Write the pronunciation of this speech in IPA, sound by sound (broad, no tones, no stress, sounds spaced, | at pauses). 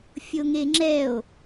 fʲ o ŋ e ŋ͡ǁ ɛ o̯